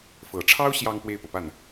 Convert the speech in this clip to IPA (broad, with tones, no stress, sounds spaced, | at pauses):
f ɤ˨˩ ʈ͡ʂʰ ɑ˥ ʊ̯ ɕ j ɑ˥˧ ŋ p w e˥˩ ɪ̯ p ɤ˩ p a˥˩ n